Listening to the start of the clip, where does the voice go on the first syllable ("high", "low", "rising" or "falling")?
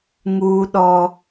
high